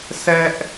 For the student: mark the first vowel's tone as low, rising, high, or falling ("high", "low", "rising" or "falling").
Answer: high